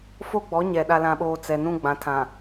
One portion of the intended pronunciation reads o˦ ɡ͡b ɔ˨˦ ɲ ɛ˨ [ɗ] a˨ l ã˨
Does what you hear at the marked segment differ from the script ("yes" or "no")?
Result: no